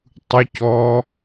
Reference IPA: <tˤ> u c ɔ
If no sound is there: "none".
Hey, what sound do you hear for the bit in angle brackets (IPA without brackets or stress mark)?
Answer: tˤ